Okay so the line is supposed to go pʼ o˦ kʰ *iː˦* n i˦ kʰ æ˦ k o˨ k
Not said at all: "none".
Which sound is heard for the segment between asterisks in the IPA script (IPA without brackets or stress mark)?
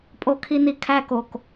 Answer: i˦